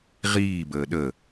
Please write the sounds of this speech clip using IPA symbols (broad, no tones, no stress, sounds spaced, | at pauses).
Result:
ʁ iː b əː ɗ ə